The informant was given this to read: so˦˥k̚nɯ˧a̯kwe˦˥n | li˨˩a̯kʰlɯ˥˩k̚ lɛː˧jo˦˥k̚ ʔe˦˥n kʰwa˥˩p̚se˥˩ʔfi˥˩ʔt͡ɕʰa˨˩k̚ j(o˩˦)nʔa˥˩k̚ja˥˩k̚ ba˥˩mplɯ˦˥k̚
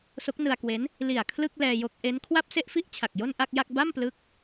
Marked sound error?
yes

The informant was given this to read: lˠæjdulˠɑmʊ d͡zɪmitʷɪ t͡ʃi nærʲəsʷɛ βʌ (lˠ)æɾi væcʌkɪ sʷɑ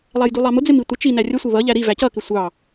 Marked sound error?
yes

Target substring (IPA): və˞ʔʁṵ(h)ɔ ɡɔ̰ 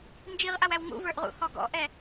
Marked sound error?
no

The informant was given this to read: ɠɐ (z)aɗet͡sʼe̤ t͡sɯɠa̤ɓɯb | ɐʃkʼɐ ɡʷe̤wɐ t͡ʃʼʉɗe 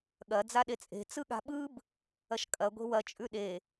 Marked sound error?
yes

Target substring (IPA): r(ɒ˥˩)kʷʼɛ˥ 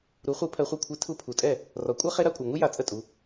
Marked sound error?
yes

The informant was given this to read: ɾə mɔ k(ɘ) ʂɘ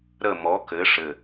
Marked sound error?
no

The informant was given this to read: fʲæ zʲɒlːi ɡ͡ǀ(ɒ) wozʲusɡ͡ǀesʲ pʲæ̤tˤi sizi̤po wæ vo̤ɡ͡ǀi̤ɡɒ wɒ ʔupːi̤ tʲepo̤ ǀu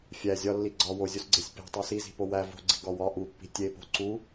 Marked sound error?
no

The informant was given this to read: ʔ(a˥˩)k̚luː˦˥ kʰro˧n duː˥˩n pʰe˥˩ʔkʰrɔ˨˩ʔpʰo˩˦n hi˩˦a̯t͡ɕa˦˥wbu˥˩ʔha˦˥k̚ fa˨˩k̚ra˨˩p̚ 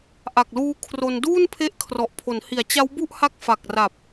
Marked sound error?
yes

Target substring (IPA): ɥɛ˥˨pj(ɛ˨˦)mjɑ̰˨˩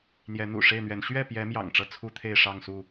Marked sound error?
no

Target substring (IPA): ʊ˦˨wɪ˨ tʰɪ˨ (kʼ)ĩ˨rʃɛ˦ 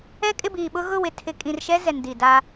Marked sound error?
no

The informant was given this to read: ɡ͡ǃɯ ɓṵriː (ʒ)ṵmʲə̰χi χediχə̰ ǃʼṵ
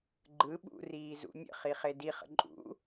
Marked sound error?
yes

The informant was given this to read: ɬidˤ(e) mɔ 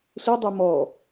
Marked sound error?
no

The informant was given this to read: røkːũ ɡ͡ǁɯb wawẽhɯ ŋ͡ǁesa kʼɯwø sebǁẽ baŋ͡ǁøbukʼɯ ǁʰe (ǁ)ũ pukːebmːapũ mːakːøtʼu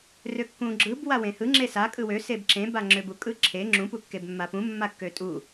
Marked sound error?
yes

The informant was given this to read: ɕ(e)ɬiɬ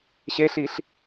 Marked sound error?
no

